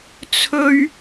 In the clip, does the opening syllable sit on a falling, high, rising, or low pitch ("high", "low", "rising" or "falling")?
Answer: high